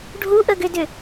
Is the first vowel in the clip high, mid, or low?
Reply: high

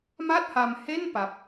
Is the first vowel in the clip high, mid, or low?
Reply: low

